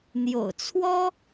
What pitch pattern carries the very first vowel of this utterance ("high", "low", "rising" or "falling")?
low